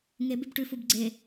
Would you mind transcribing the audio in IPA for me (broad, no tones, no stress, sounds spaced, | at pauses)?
ŋ e b ʉ b ʈ ʉ f u b ɡ͡ǀ e